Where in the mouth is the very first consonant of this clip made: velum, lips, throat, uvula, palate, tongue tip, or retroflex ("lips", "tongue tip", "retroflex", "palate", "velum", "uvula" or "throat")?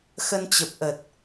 velum